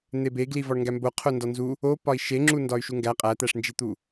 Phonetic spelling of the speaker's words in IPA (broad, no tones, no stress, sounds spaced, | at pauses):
n̪ e b e ɡ l i v ɒ ɳ ŋ ɡ æ m b o qʰ o n d ɒ n z u | o p ɒ i̯ ʃ e ŋ͡ǁ u n d ɒ y̯ ʃ u ŋ ɡ æ qʼ æ t̪ æ ʂ n d͡ʒ i t̪ u